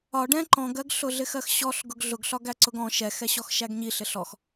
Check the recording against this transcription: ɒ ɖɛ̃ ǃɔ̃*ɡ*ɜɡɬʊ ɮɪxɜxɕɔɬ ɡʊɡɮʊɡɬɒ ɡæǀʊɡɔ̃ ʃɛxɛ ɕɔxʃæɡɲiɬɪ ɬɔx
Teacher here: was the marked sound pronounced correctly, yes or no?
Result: yes